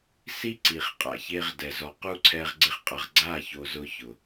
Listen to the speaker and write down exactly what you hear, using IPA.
si˦ ǀi˨χqʼa̰˨çe˧ʁ dɛ˨ zɔ˨qu˦ǀʰɛ˧ʁ ɡ͡ǀɪ˦χqʼa˧ʁ ɡ͡ǀa˦˨ ço˧zʊ˧ çʊ˨

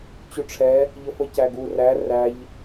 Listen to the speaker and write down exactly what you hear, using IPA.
t͡ɕuʈ͡ʂʰɛ | ʎəfəcæɡu ræ ræʎ

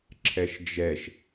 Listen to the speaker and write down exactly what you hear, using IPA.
ǁʰɛʃd͡ʒɛʃ

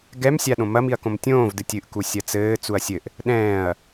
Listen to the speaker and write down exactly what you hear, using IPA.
ɡɛm sʲaɗõmɐ miɐ̯kõmtʲõːvdɨ tʲɨʔku sʲɐt͡sɘː t͡suɐ̯sʲɘʔ | ɗɛ̃ːɐ̯

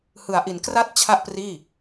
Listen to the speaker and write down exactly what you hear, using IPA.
hɯ˩˦a̯ʔi˩˦nkra˥˩t̚ t͡ɕʰa˥˩ʔpriː˥˩

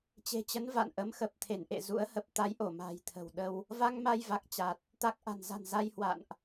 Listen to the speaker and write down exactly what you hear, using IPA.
t͡ɕe̤˨˩t͡ɕə˨˦n va̰˧˨nʔə˨˦m xə˨˩p̚t̪ʰe˧˩nʔḛ˧˨ zṵ˧˥ə̯hə˦˥p̚ t̪a˨˦jʔo˧˩ma̤ː˨˩j t̪ʰə̤˨˩wɗə˧w | va˧ŋma˧jva˨˩k̚ t͡ɕa˨˩t̚ | t̪a˨˩k̚ ʔa̤˨˩nza̤˨˩n za˧jhwa̰˧˨nʔ

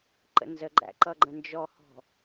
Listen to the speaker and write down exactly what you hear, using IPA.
ǃə̰nzəɡ͡ǃæ̰ ǃʌɡ͡ǃə̃nd͡ʒɔhɔ̤

